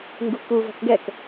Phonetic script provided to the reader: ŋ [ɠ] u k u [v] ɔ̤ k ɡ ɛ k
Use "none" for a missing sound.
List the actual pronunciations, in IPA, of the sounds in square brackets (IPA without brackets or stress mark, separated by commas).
ɡ, v